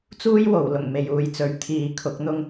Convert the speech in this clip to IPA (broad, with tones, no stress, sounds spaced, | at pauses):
t͡s uː˥ j w o˨˩ w l ʊ˨˩ ŋ m e˨ j uː˨ j t͡s ɵ˨˥ ɥ t̪ʰ iː˨ kʰ ʊ˨˥ k̚ n̪ ʊ˥ ŋ